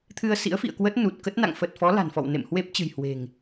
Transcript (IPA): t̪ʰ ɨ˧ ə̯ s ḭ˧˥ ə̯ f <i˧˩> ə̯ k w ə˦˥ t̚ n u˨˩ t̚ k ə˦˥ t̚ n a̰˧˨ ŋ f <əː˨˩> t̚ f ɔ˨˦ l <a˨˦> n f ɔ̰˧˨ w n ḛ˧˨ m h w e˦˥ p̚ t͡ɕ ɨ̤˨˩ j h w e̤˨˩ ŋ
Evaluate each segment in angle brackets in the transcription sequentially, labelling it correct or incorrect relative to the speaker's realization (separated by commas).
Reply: incorrect, incorrect, incorrect